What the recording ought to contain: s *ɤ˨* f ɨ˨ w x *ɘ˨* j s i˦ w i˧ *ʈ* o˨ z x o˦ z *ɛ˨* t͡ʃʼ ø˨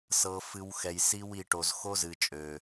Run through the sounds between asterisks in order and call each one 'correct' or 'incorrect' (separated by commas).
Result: correct, incorrect, correct, incorrect